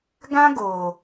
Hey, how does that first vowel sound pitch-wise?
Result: high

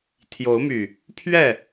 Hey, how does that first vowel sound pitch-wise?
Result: rising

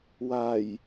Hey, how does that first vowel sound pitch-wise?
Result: low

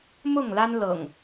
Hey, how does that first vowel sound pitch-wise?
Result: falling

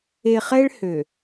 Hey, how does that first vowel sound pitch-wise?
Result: low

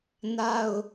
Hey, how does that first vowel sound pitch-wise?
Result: high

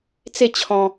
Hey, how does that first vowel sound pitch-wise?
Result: falling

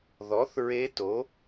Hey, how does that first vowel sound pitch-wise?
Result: rising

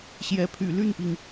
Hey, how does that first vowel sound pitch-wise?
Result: rising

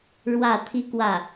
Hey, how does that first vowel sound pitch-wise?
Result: falling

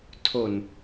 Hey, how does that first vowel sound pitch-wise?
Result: low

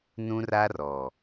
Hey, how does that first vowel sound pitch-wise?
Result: high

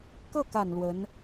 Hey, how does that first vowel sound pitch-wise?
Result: falling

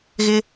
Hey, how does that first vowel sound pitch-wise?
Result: high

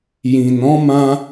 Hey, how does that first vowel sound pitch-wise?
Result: low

